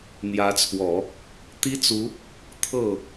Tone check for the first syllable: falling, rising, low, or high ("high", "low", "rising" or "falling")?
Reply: rising